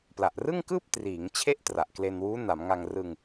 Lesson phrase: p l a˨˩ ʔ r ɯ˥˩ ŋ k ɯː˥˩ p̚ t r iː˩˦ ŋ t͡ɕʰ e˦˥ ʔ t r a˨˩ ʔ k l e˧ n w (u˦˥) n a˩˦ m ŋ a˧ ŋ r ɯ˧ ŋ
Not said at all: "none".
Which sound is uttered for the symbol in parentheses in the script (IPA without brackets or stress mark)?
uː˦˥